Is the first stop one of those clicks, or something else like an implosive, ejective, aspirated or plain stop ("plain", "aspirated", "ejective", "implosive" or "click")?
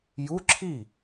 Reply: click